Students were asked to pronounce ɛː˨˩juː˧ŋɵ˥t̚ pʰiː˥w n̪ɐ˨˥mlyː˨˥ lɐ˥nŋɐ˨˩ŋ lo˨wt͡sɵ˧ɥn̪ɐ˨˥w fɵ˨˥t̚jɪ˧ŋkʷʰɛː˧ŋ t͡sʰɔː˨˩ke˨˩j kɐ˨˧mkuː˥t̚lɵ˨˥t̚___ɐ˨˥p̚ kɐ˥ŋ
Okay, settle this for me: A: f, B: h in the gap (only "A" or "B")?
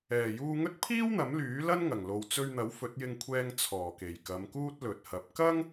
B